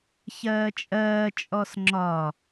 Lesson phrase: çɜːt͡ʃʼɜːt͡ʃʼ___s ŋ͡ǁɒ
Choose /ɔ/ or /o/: ɔ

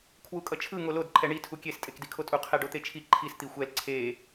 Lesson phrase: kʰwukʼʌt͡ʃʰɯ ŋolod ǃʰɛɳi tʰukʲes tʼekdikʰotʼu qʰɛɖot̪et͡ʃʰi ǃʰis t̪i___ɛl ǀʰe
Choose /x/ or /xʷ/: xʷ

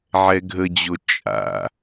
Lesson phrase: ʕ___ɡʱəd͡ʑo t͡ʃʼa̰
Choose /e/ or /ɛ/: ɛ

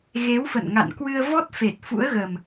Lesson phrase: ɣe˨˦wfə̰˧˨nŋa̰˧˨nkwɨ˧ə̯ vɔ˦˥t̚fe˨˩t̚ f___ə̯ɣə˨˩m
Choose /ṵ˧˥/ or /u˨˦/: ṵ˧˥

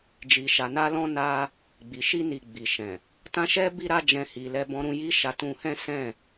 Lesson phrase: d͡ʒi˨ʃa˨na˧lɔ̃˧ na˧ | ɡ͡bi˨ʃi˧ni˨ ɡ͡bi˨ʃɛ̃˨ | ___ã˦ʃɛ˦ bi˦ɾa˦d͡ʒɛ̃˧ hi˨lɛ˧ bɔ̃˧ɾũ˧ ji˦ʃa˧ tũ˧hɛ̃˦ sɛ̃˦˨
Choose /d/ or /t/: t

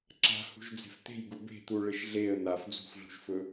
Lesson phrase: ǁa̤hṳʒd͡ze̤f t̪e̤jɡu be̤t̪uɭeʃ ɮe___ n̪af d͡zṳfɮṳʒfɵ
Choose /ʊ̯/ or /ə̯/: ə̯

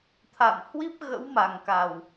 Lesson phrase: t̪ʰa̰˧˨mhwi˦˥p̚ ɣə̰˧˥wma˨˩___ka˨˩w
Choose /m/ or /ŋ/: ŋ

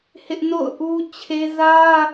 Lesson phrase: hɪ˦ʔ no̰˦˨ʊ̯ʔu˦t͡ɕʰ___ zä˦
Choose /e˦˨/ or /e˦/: e˦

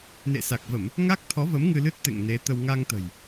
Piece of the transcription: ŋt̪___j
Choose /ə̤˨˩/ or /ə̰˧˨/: ə̤˨˩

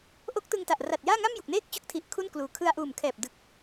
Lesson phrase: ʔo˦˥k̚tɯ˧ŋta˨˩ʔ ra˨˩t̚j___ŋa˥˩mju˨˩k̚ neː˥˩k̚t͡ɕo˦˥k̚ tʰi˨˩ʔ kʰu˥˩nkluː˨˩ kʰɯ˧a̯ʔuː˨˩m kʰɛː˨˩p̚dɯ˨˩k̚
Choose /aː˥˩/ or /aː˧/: aː˥˩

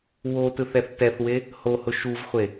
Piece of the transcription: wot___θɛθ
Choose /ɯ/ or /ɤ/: ɯ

